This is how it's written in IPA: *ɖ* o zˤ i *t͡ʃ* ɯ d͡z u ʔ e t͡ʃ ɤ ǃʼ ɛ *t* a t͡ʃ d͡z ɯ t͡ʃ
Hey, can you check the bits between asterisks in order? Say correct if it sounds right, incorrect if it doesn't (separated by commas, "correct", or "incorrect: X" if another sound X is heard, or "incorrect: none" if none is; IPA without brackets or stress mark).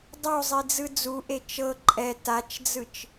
incorrect: dˤ, incorrect: d͡z, correct